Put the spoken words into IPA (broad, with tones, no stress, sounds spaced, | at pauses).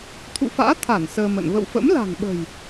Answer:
t̪ʰ ṵ˧˨ f a̰ː˧˥ t̪ʰ a˧˩ n s əː˧ m ə̰˧˨ n v ə̰˧˨ w f ə̰˧˥ m l a̤˨˩ ŋ ɓ ə̤˨˩ j